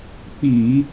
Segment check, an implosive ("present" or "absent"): absent